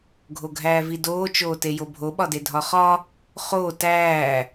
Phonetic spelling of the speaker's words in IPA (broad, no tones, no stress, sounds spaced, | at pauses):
ɡʱ o ɡʱ æː v i d oː t͡ʃ oː t e j o bʱ o ɓ ɒ d e dʱ ɒ χ ɒ | χ o t æː